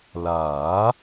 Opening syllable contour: rising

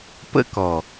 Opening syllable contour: high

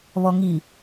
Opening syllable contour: low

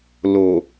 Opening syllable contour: low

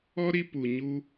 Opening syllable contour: high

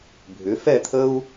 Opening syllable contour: rising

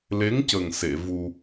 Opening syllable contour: rising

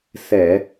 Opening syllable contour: low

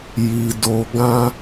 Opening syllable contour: low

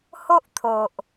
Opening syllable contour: high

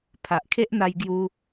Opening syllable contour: low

